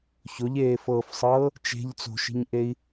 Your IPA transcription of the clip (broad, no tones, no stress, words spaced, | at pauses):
çoʎeːfɤːfsˤɤː | t͡ʃe̤ʎ t͡so̤ʃi̤ɲʔei̯